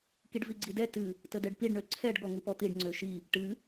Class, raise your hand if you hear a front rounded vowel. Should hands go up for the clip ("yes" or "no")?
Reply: yes